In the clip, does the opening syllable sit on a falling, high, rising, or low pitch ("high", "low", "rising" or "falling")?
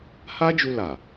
high